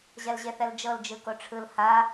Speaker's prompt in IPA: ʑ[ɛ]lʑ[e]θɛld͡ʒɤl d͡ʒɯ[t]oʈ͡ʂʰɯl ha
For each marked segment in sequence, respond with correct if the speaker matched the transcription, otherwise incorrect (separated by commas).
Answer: correct, correct, incorrect